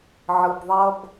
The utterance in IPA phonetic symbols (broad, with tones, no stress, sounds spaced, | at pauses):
ʕ ɯ˩ b ðˤ ʌ˧ b